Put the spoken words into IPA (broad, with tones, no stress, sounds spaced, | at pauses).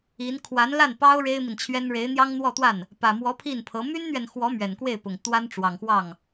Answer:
i˧˥ n kʰ w a˧˥ n l a˥˩ n p ɑ˥ ʊ̯ ɻ e˥ ɪ̯ m i˨ n t͡ɕʰ ɥ ɛ˥ n ɻ e˧˥ ɪ̯ n̪ j ɑ˥ ŋ n̪ w ɔ˥˧ t̪ w a˥˩ n | p ä˨˩ m w ɔ˧˥ pʰ i˥˩ n pʰ ɤ˧˥ m y˥ n n̪ ɥ ɛ˨ n x w ɔ˧˥ m ɥ ɛ˨˩ n k w e˥˩ ɪ̯ p ʊ˨˩ ŋ t̪ w a˥ n ʈ͡ʂ w ɑ˨˩ ŋ x w ɑ˥˩ ŋ